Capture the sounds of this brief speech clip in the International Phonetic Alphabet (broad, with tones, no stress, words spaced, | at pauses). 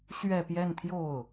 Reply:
ɕɥɛ˥˧pjɛ˥˧nt̪ʰjo˥˩ʊ̯